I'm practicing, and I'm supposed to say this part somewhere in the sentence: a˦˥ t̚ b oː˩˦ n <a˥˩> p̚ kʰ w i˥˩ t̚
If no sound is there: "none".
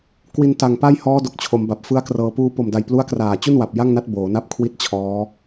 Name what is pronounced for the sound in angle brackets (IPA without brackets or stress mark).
a˥˩